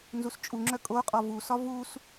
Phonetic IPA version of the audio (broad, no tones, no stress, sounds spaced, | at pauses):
n z u s t͡ʃʼ u ŋ͡ǁ œ kʼ o qʼ ɔ v u s ɒ v u s